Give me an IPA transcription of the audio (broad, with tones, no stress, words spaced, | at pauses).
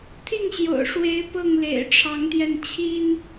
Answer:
t̪ʰi˥˨ŋɕjo̰˨˩ʊ̯ʂwe˨˦ɪ̯ pɤ˥˨ŋlḛ˨˩ɪ̯ʈ͡ʂʰɑ˨˦ŋt̪jɛ˧n t͡ɕʰi˦n